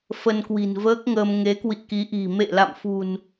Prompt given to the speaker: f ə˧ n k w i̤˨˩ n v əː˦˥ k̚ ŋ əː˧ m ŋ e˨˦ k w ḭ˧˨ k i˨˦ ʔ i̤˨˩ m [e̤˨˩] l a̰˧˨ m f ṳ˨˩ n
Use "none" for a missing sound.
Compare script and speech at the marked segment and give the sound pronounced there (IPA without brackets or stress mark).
ḛ˧˨